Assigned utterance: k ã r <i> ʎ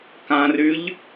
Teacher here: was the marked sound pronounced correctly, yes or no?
no